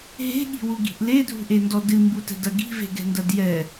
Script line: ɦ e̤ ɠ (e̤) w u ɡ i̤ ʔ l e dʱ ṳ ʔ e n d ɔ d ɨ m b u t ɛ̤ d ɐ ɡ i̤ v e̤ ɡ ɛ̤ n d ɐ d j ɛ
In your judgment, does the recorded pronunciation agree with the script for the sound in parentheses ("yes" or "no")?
no